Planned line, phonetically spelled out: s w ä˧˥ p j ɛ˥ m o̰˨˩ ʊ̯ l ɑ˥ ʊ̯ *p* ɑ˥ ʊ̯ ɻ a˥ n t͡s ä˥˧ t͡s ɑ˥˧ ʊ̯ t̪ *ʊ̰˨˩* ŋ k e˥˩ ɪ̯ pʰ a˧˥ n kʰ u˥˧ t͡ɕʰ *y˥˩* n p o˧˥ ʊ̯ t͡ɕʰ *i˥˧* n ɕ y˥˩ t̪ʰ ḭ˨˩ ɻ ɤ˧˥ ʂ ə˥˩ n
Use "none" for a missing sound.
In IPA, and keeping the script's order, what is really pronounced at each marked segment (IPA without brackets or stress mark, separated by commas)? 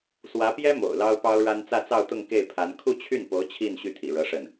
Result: p, ʊ˥˧, y˥˩, i˥˧